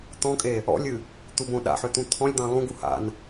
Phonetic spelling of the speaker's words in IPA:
t̪ ɔ̃ kʼ e | ɔ̰ lʲ ɨ | t̪ u b õ ɗ a̰ ħ ø t̪ ũ t̪ʰ ɔ̃ lʲ d̪ ɑ̃ lˠ ũ ɡ u h a̰ n

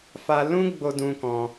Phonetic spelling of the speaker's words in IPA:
f a˧ l ũ˦ ɡ͡b o˧ d ũ˧ k ɔ̃˧

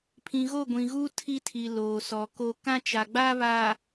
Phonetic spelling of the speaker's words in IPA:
pʰ ĩ˨ ɣ o˦˨ ɡʷ ĩ˨ ɣ uː˦ tʰ i˦ tʰ i˨ l oː˨ s ɔ˨ k o˦ k ã˦ t͡ʃ a˨ ɡ͡b a˦ β aː˨

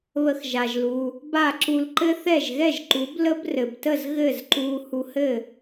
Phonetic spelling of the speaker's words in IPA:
β ə˧ x ʒ a˩ ʒ l u˩ | b a˥˩ ǁ u˧ l ǃ ɘ˥ θ ɛ˥˩ ʒ ɣ ɛ˥˩ ʒ ǃ u˩˥ b l ə˥ b r ɘ˩ b t ə˥˩ z ɣ ɘ˥˩ z ǃ u˧ h u˧ h ɘ˥˩

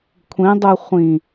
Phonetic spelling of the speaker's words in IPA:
kʷʰ ĩ dˤ u χʷ ĩ

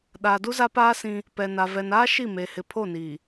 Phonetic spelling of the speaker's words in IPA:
ɗ aː˨ d u˦ z a˦ p aː˦ s ĩ˦ | p ɛ˨ n a˨ v ɛ˨ n aː˦ ʃ i˦˨ m eː˨ h ɪ˨ pʰ o˦˨ n iː˨

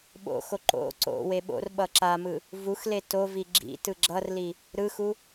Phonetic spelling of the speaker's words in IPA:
ɓ o̰ x o ǃ o̰ ǀ o̰ w e ɓ o̰ r ɓ ʌ ǁ a m ɯ | v u x l e t o v i ɡ͡ǁ ḭ t ɯ ɡ͡ǁ ʌ r l i | ɾ ɯ x u

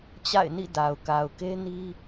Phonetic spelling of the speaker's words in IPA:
t͡ɕ a̰˦˨ ɪ̯ n ḭ˦˨ d a˨ ʊ̯ k a˨ ʊ̯ k e˦ n i˦

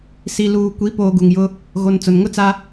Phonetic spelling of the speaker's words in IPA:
s i˨ l uː˨ kʷ i˨˦ p oː˨ ɡ u˨ ŋ j ʊ˦ | ɣ o˨ n t͡s ʊ˨ n ŋ ʊ˦ t͡s a˦

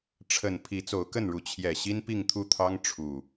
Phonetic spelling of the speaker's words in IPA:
ʈ͡ʂʰ ə˨˩ n pʰ i˨˦ t͡s o˨˦ ʊ̯ k ə˥˨ n ɻ u˨˦ t͡ɕʰ j ɛ˨˩ ɕ i˦ n p i˥˨ ŋ t̪ʰ u˥˨ t̪ʰ ɑ˦ ŋ ʈ͡ʂʰ u˨˩

